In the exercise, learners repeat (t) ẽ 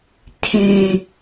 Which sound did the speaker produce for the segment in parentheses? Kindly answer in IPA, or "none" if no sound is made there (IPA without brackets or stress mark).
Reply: tʰ